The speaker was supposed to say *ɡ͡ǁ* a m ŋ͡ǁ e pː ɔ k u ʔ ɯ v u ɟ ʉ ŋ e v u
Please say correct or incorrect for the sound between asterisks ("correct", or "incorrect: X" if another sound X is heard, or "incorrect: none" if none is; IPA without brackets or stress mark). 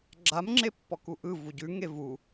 correct